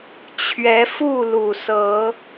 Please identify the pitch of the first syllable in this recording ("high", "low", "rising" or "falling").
rising